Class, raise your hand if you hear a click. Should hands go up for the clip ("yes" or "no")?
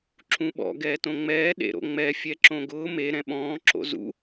yes